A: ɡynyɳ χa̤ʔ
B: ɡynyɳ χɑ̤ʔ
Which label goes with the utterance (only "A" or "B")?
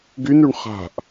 A